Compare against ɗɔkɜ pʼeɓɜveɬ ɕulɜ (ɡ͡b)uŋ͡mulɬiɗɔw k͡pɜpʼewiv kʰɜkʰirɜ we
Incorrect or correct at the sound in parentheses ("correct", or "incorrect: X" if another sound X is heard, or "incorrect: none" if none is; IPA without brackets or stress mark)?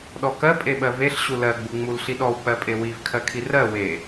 correct